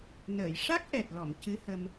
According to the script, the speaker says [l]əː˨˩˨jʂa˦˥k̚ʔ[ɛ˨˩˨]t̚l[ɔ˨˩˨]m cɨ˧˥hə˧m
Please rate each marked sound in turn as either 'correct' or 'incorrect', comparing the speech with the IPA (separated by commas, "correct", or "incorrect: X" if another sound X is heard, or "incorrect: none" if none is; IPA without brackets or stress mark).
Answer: incorrect: n, incorrect: ɛ˨˩, correct